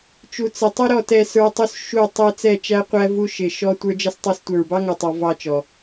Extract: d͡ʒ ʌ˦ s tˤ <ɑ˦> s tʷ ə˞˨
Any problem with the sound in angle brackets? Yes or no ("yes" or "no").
no